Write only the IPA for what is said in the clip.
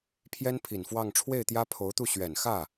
pʰ j ɛ˥ n pʰ i˨˩ n f w ɑ˥˧ ŋ ʈ͡ʂʰ w e˥˩ ɪ̯ t̪ j ä˥ pʰ o˧˥ ʊ̯ t̪ u˥˩ ɕ ɥ ɛ˨˩ n x ä˥˩

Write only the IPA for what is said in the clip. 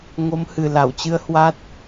ŋ o˨˦ m h ɨ˨˩ l a˧˩ w t͡ɕ ɨ˧ ə̯ h w a˦˥ t̚

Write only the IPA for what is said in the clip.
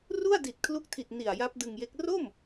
r u˥˩ a̯ d i˨˩ t̚ kʰ l u˦˥ k̚ tʰ i˨˩ t̚ n i˨˩ a̯ j a˦˥ p̚ d ɯ˧ ŋ j e˦˥ k̚ r o˥˩ m

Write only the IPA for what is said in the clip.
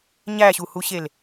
ɲ æ ɕ u h u ɕ e l

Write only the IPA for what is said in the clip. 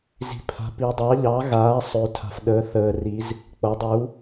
z i̤˨ pʰ a̤˨ p i˨ dˤ ɑ˨˦ ʎ ɑ˨˦ ɣ aː˨˦ sˤ ø˨ tʰ a̤˨ f ɗ əː˨˦ θ əː˨ r i˨˦ z | k͡p ʌ˨˦ dˤ u˨˦

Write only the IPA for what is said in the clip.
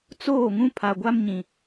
t͡s oː˦˨ ŋ ũ˦ pʰ a˨ ɡʷ a˦ m ɲ ĩ˨

